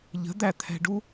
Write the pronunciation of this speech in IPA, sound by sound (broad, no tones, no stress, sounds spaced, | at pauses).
ʎ ə̤ d̪ æ t̪ʰ ɛ̤ ɖ u